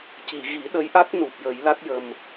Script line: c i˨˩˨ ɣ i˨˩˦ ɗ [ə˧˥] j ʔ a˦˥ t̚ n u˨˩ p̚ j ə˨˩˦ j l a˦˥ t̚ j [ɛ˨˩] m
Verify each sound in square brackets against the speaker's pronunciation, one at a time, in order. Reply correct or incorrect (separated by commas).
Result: correct, incorrect